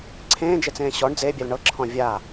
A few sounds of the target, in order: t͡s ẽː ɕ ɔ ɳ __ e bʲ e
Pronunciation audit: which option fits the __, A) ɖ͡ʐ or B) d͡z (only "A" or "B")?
B